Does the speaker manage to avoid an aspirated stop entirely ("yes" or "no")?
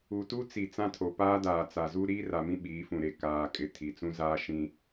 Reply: no